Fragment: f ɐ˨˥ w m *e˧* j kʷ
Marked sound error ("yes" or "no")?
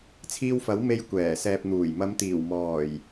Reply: no